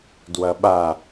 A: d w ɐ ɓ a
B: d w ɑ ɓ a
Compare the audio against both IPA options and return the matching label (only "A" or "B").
A